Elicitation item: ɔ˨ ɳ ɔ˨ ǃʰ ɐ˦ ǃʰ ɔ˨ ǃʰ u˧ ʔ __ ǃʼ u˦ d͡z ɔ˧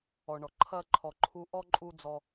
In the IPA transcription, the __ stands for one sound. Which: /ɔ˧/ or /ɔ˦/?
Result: ɔ˦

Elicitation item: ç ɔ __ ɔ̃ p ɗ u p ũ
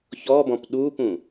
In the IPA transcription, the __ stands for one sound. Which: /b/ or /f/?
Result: b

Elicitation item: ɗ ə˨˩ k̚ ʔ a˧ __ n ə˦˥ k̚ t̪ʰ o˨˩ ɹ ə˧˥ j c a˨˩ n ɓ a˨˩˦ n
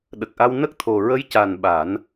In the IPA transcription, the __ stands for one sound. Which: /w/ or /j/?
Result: w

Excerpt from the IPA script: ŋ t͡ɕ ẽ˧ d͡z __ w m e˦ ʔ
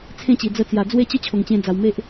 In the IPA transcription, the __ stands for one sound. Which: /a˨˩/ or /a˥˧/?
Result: a˨˩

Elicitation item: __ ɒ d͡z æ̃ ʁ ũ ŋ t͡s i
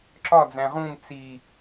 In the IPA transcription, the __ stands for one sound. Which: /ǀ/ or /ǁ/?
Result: ǁ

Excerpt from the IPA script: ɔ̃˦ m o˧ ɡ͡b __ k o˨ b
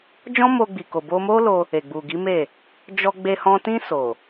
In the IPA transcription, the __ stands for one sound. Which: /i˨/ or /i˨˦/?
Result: i˨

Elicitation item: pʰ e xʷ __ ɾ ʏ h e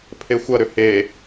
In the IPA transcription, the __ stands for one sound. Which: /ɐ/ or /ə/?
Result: ɐ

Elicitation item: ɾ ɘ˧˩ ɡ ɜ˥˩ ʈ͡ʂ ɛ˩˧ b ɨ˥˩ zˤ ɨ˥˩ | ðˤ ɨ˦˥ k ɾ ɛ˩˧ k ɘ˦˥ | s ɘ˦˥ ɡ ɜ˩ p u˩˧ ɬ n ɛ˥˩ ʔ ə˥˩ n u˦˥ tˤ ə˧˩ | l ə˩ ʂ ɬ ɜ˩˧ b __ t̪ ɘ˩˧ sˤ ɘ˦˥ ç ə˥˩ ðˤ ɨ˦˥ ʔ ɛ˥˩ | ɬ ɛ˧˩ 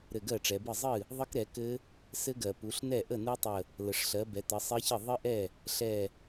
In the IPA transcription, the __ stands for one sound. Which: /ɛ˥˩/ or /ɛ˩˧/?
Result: ɛ˩˧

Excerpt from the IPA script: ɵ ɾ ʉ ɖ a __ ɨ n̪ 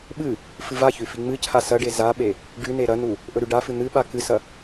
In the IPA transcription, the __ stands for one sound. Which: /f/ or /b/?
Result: f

